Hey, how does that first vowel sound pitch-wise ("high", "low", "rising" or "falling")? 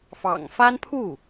low